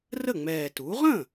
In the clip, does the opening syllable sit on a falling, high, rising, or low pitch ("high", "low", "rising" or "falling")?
falling